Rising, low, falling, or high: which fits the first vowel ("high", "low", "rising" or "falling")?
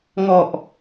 low